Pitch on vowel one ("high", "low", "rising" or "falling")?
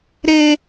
high